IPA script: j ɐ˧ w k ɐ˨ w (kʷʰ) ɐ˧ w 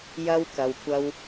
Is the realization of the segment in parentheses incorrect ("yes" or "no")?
yes